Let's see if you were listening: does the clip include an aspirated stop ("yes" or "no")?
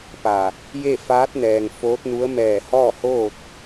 no